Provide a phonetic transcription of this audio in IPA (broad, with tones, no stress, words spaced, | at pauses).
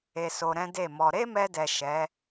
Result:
e˧so˧ɾɛ̃˦ de˦˨mɔ˧ ɾe˦mɛ˧dɛ˨ ʃɛ˨˦